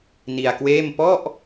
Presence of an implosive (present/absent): absent